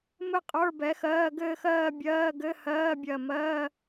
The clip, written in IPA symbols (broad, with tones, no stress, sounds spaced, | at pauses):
m ɘ˥˧ qʼ ə˞˧˥˧ b ɛ˨˥ x ɜː˧˥˧ ɡ ɘː˥˧ x ɜː˥˧ bʲ ɜː˧˥˧ ɡ ɘ˧˥˧ h ɜː˧˥˧ bʲ ɜ˧˩ m ɜː˧˥˧